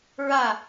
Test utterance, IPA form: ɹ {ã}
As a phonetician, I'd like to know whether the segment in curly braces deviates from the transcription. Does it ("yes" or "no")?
yes